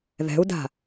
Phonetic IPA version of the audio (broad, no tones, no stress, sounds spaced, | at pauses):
ð ɛ̤ u̯ d a̤